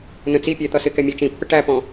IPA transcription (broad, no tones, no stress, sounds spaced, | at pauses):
n ə̃ t͡s i pʲ æ t̪ ʌ s ɪ k ɛ mʲ ɑ t͡ʃ ĩ pː ə ʈ æ p ɔ̃